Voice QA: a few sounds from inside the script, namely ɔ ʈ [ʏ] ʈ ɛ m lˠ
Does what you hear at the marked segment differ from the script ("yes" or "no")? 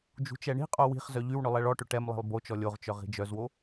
no